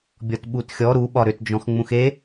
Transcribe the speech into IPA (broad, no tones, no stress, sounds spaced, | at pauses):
bʲ ɔ t ɓ u t xʲ ɔ ɾ u ɓ ɒ ɾ ʏ t d͡ʒ ɔ̃ x ŋ͡m ũ x e